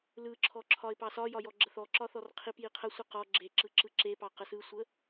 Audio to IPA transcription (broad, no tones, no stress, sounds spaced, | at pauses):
l ɯ ǁʰ ɔ ǁʰ ɒ ɪ̯ p ɑ s ɒ j ɒ j ɔ ɡ͡ǁ ə θ ɔ ǁ ɒ θ ɔ r qʰ i p j i qʰ ə sʷ ɯ q ɔ ɡ͡ǁ e ǁ ɯ ǁ ɯ ǁ e p ɑ q ə s ɯ sʷ ə